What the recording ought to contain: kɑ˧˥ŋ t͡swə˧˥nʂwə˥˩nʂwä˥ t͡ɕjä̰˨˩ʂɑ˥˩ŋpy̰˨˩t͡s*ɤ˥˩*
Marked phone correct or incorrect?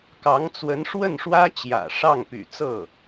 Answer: correct